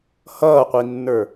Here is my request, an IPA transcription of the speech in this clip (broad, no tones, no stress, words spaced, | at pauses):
hʌːqʷinːə˞